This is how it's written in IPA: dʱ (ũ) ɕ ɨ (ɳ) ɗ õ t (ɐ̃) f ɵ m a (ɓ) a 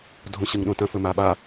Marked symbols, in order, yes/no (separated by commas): no, no, yes, yes